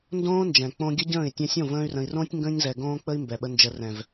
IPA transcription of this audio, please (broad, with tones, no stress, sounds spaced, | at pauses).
n d õː˦ n d͡ʒ ɛ̃˨ k͡p õ˧ ɡʲ ə˦ ɟ ə̃ː˦˨ i̯ tʲ ɛ̃˧ sʲ õ˦˨ v ə̃ː˧ y̯ r ə̃˨ i̯ r õː˦ tʲ ŋ ɡ ə̃ː˧ ɲ z ɛ˨ ɡ õː˦ k͡p ə˦ i̯ m b ɛ˨ ɓ ə˧ n d͡ʒ ə˨ r ɛ̃˨ v